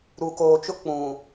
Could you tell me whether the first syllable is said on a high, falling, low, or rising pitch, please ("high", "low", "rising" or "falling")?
low